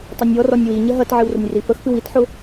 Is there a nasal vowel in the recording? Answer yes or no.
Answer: no